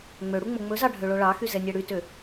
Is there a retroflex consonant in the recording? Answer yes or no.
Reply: yes